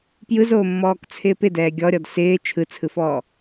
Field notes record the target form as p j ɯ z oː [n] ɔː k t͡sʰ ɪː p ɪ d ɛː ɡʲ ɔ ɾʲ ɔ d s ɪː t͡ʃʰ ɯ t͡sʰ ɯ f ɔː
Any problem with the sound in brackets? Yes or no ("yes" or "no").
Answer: yes